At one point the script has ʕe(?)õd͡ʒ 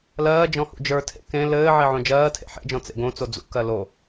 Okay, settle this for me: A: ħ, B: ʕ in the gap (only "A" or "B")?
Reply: B